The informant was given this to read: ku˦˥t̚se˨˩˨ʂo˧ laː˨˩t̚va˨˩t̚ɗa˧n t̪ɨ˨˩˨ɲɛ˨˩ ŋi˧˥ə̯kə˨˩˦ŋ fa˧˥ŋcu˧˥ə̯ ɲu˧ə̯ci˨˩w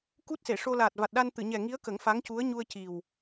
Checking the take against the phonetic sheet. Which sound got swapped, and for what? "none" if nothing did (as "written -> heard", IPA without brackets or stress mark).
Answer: none